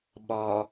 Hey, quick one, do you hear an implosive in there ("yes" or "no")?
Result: yes